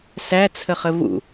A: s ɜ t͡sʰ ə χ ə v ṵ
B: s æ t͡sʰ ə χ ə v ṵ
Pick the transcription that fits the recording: B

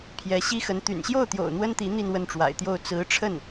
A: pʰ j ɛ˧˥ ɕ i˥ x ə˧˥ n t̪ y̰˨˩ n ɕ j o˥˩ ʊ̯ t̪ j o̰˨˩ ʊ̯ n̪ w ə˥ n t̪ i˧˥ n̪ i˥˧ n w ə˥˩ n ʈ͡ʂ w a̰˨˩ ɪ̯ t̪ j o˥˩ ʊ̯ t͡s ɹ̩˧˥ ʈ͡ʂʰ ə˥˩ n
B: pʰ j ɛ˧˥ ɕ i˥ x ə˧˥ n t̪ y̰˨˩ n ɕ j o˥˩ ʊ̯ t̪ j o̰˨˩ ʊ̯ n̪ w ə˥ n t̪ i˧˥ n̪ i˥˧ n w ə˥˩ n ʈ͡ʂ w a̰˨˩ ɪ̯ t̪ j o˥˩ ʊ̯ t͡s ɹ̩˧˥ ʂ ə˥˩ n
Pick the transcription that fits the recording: A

